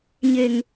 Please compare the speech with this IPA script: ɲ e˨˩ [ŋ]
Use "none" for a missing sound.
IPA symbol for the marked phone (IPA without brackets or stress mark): ŋ